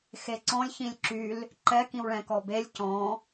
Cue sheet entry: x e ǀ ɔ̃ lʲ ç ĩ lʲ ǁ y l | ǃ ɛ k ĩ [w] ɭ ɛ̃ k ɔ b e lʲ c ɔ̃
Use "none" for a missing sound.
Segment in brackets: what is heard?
w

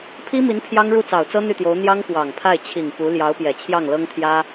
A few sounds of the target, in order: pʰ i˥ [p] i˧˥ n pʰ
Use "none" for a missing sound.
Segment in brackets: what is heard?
m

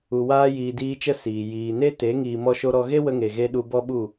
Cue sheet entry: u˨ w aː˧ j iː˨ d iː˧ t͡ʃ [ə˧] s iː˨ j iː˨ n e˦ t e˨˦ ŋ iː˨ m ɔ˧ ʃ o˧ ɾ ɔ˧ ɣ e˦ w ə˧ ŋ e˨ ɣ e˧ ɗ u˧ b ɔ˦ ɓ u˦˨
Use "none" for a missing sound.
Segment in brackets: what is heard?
ə˧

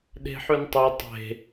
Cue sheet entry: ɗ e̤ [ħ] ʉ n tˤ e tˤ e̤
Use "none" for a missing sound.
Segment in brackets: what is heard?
ħ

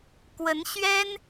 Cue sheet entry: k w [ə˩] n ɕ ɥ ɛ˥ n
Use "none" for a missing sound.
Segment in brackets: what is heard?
ə˧˥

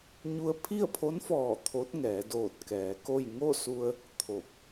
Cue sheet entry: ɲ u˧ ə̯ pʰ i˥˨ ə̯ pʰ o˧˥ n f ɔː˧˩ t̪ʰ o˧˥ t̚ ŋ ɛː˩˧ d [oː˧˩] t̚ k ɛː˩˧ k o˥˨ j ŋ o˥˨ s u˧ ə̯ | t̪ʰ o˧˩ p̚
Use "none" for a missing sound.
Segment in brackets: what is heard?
oː˧˩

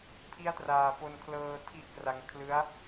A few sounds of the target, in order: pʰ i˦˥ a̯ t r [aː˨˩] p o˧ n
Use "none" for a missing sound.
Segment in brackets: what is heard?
aː˨˩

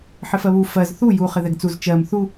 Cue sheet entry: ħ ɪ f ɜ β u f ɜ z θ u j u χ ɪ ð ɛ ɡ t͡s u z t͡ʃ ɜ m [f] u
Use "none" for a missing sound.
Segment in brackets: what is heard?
θ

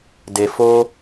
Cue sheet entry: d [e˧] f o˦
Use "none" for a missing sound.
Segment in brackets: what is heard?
e˧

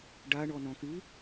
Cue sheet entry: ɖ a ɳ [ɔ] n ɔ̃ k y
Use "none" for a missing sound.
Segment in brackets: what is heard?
ɔ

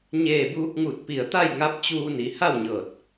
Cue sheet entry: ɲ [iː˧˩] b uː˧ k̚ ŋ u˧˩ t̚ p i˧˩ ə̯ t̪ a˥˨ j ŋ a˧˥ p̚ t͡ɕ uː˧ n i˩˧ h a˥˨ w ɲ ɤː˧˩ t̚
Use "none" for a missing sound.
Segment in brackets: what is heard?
eː˧˩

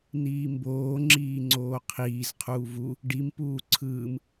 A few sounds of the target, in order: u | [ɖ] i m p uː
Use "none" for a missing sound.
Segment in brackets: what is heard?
ɖ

